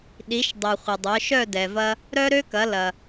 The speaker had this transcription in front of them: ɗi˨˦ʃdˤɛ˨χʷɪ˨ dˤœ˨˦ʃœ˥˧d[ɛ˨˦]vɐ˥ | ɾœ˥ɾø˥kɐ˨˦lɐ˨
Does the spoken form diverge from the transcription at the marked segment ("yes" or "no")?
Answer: yes